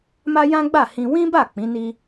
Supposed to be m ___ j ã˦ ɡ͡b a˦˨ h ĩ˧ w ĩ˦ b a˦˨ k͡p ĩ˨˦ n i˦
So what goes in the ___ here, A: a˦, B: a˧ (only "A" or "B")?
A